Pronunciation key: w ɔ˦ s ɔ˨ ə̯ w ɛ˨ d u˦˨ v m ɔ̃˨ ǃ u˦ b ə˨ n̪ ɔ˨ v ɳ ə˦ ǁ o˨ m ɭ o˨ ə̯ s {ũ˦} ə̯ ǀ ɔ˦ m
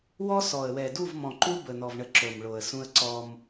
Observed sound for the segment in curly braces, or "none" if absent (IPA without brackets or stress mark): ũ˦